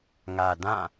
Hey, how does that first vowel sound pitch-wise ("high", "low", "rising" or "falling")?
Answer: low